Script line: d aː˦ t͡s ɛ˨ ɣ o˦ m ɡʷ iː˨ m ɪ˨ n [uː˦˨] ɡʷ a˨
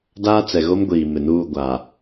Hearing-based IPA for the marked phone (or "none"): uː˦˨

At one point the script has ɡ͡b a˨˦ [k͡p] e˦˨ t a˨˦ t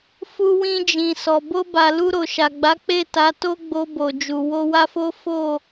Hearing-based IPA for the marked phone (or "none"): k͡p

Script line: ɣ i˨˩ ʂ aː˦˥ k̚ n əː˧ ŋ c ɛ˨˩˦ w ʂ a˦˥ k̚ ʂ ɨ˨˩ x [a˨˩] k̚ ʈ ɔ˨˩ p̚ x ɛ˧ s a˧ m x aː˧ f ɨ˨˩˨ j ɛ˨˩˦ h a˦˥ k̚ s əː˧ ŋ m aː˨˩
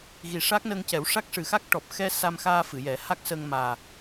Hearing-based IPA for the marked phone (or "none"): a˦˥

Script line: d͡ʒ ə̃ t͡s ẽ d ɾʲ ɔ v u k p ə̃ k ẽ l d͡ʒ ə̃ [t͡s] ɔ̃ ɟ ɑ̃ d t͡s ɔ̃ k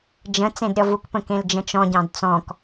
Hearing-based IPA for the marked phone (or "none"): t͡ʃ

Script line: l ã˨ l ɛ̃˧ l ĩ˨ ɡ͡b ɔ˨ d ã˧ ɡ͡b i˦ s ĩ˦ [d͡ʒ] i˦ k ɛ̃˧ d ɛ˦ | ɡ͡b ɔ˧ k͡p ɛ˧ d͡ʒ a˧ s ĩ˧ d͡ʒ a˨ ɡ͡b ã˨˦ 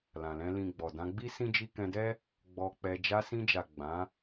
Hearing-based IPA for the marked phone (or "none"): d͡ʒ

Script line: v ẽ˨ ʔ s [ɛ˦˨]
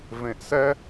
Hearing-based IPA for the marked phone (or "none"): ɛ˦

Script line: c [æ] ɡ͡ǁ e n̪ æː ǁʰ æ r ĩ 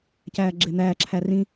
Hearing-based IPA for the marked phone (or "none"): æː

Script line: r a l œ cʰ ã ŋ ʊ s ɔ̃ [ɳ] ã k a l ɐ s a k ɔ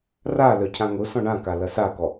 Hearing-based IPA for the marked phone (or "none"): ɳ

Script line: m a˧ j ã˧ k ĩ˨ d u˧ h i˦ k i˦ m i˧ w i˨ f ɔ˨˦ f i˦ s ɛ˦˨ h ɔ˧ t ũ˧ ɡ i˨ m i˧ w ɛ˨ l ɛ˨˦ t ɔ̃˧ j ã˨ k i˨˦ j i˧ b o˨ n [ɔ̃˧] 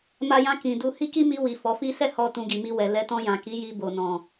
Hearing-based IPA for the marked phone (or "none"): ɔ̃˨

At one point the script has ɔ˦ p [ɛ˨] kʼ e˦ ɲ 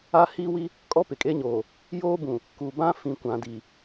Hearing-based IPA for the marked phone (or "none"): ɪ˨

